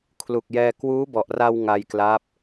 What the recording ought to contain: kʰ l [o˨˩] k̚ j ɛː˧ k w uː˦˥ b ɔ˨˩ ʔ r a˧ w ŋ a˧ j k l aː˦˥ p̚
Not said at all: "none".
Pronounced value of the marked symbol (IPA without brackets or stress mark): u˨˩